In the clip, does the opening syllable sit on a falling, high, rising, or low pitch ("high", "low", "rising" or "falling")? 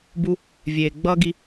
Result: high